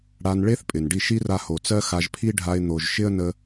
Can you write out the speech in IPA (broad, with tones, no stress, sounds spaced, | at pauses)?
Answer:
ɽ a˧ n ɭ e˦ θ pʼ ɪ˨ n ɖ i˦˨ ʃ i˦ r a˧ h o˨ t͡s ɜ˦ x a˧ ʒ pʰ i˦ ɖʱ a˧ ɪ̯ n̪ o˨ ʒ ʃ ɪ˦ ə̯ n ə˦